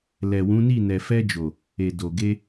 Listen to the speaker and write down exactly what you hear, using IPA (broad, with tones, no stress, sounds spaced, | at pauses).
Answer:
l ɛ˨ w ũ˨˦ n i˦˨ n ɛ˨ f ɛ˧ d͡ʒ o˨ | e˨ d o˨ ɡ e˧